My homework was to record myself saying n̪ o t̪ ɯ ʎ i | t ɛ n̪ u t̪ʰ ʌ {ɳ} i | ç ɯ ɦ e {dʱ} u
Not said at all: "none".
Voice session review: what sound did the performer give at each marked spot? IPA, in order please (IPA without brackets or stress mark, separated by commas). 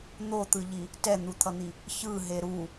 n̪, ɾ